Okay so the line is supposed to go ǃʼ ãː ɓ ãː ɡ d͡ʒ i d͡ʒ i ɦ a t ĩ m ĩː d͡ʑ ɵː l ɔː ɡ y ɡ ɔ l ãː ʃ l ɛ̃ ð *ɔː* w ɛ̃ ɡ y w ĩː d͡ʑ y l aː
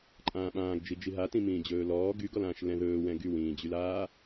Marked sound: incorrect: ɵː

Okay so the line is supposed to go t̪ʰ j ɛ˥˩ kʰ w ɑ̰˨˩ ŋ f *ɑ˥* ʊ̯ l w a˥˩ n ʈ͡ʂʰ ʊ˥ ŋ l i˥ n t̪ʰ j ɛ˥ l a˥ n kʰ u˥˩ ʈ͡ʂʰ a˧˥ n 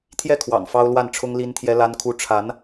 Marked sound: correct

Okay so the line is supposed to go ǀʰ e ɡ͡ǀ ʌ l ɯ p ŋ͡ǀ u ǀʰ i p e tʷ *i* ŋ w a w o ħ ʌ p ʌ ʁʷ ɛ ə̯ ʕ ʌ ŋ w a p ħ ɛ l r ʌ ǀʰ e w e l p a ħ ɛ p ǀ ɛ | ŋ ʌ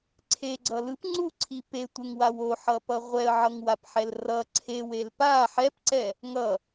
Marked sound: incorrect: e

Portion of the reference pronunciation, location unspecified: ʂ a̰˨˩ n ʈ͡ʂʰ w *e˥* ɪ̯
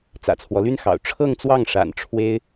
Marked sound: correct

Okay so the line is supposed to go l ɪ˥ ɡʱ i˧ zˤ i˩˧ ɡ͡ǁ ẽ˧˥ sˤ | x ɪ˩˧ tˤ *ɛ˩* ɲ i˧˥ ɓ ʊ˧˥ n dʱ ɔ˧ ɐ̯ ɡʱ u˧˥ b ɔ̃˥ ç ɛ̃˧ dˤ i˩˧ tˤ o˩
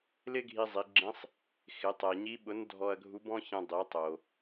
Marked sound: correct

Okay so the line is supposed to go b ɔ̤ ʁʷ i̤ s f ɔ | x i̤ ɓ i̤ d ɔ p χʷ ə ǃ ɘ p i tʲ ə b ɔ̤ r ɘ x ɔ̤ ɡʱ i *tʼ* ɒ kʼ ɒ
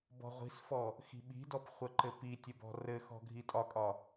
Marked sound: correct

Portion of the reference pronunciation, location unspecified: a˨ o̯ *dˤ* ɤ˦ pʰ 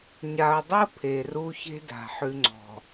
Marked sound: correct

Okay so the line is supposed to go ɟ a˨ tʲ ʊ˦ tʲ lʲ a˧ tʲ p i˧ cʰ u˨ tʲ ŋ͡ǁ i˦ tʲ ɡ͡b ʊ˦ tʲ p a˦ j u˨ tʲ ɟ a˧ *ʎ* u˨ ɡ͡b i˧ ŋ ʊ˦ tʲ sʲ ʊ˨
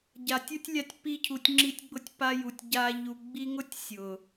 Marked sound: correct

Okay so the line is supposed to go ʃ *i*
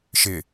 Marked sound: incorrect: ɪ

